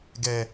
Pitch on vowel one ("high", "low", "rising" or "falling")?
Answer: low